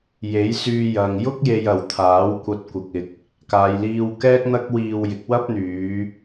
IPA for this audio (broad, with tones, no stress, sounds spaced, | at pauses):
j e˨˥ j s yː˧ j ɐ˨ ŋ j ʊ˥ k̚ j e˨ j ɐ˨˩ w t̪ʰ aː˨˥ w kʷ ɐ˧ t̚ kʷ ɪ˨ k̚ ɪ˨ k̚ | k aː˨ j l iː˧ w k ɛː˥ k̚ n̪ ɐ˥ k̚ w iː˧ w j ɪ˨˥ k̚ w ɐ˥ p̚ n̪ yː˨˧